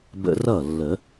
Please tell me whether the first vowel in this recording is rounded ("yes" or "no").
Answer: no